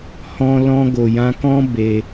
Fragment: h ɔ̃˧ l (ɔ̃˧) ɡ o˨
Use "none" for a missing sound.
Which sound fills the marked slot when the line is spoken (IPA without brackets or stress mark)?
ɔ̃˧